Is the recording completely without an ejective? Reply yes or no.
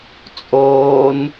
no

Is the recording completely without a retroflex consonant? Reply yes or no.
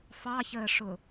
no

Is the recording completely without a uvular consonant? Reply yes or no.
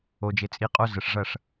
no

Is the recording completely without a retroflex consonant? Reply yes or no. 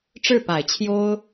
no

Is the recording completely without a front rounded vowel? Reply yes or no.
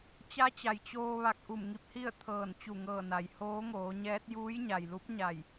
yes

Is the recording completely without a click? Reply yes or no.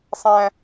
yes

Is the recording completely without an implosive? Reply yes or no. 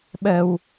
no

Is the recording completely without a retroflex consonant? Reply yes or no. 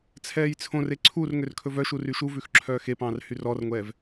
yes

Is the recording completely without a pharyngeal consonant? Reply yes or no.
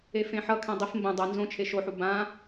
no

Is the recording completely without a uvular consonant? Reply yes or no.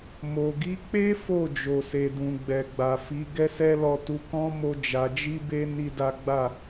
yes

